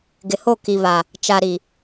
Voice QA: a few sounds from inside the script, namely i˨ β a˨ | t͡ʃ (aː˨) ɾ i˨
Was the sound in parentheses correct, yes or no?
no